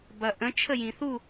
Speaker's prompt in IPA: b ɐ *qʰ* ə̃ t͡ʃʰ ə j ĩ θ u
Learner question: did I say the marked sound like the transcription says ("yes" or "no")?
no